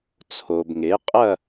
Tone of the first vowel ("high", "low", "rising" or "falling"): low